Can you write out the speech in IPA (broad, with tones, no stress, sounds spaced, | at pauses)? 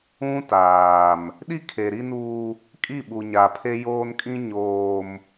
ũ˦ t aː˨ m | ɗ i˦ kʰ e˨ ɾ i˦ n uː˦ | kʼ i˦˨ ɓ u˨ ɲ a˨ pʰ e˦ j oː˦ n kʼ ĩ˦ ɲ oː˨ m